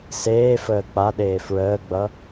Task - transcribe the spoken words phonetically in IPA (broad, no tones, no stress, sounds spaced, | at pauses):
s eː f əː k͡p a ɗ eː f ɹ əː ɡ͡b ʌ